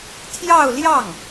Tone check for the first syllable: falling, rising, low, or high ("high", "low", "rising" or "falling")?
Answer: falling